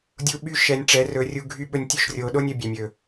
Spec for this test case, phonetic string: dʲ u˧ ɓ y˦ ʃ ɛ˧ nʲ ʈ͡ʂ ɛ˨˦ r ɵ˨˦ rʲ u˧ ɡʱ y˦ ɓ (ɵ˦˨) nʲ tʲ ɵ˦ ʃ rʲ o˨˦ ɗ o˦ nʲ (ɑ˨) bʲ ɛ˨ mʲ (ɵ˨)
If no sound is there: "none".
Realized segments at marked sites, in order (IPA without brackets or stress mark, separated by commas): ɵ˧, ə˨, ɵ˨